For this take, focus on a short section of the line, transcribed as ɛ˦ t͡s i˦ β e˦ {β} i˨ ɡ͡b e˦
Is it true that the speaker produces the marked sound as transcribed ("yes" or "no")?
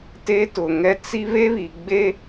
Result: yes